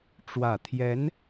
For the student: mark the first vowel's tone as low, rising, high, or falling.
low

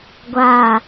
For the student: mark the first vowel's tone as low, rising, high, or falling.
falling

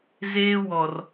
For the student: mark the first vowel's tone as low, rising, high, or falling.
high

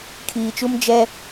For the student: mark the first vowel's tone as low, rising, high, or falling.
low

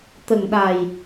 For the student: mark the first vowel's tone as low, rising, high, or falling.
low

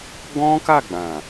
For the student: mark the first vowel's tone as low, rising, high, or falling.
high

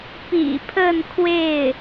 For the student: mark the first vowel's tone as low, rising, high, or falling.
low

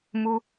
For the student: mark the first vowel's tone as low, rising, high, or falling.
high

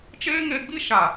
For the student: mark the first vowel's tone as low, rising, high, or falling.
high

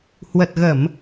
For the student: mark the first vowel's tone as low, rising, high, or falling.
low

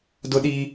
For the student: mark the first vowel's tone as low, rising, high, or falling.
high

